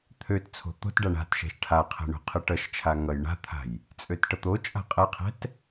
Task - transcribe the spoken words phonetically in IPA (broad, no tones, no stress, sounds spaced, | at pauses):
t̪ʰ ø t t͡sʰ o̤ t̪ o̤ t ɖ a ɳ a̤ t ʃ ɛ̤ ʃ ʈʰ a qʰ ɛ̤ ɳ o̤ qʰ ɨ ʈ ʌ ʃ t͡ʃʰ a ŋ ʌ j ɳ a̤ t̪ʰ a̤ j | t͡sʼ ø t ʈ ʌ t̪ o t͡ʃʼ a̤ qʼ ɛ qʰ ɛ̤ t